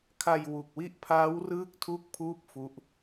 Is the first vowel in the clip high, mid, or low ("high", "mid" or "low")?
low